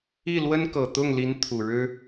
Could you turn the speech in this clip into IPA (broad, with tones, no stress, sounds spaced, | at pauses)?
i˥˩ l w ə˥ n k ɤ˨˩ t̪ ʊ˥˩ ŋ l i˧˥ n t̪ʰ u˨˩ ɻ ɻ̩˥